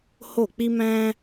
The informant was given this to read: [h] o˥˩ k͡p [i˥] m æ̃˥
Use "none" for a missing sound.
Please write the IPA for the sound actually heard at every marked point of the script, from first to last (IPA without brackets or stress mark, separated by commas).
h, i˥